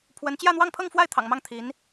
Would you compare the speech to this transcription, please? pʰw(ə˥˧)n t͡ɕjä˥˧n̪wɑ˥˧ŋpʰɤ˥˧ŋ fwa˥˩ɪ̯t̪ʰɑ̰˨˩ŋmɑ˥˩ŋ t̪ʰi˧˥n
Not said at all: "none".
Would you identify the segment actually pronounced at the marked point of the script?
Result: ə˧˥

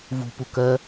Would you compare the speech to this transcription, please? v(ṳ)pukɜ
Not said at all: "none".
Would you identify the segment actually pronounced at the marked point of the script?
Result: ṳ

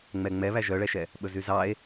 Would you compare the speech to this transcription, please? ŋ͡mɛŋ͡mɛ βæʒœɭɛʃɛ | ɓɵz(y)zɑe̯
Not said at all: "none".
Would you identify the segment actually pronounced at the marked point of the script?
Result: y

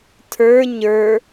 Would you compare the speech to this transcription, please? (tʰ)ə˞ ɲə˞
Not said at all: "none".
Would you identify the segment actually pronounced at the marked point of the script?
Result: tʰ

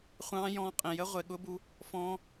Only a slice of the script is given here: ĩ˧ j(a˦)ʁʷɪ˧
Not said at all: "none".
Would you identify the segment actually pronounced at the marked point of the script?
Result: ə˦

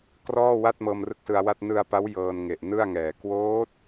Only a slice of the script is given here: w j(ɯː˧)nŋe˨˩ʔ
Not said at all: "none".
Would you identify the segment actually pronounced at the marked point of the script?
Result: ɤː˧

